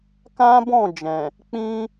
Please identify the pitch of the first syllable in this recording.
high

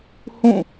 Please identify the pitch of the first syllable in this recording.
falling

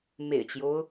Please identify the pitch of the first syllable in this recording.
low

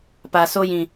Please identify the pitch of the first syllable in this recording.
low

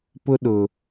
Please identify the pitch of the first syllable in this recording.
high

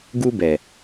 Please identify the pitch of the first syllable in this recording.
high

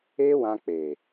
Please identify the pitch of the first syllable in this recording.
high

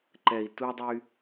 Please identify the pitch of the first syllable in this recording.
low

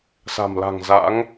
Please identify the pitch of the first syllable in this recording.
low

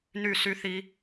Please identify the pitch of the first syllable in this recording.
falling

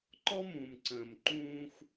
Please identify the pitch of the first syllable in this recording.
high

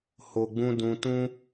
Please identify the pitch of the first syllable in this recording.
low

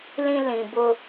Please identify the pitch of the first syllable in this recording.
high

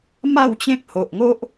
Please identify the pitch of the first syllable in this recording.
falling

